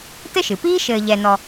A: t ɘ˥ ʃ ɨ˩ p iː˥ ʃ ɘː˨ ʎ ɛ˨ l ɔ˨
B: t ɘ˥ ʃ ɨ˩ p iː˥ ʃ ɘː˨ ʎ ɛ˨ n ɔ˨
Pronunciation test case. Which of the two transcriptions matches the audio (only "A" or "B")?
B